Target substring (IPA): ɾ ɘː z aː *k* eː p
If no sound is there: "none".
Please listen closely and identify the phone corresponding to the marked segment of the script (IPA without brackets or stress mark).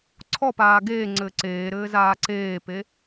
ǀ